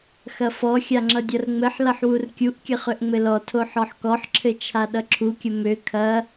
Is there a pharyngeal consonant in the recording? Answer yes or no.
yes